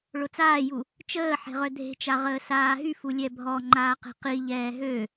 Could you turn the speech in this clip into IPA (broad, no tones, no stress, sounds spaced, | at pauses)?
ɭ o t͡s aː j u | t͡ʃ əː ħ e̤ ʁ œ dʱ e̤ t͡ʃ a ʁ əː s aː ɦ y f u lʲ ɛ bʱ ɔ ŋ͡ǃ aː q e̤ q i ʎ ɛː ɦ ø